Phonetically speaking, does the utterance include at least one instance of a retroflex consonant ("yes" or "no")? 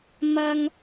no